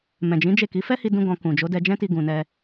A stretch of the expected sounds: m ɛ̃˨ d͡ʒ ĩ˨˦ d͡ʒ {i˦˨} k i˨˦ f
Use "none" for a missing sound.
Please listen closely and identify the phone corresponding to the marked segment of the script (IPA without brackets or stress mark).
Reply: e˦˨